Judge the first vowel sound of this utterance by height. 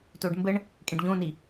mid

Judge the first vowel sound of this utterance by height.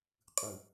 high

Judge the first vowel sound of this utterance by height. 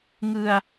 high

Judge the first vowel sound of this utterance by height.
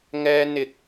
mid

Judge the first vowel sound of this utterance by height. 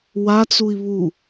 low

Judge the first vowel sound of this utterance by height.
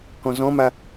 mid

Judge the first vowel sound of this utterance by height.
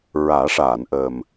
low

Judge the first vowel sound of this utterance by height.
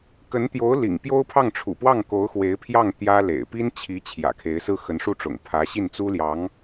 mid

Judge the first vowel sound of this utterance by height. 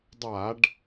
low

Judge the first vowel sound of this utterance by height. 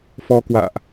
mid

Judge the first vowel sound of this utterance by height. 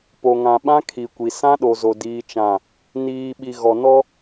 mid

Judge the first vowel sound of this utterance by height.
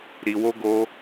high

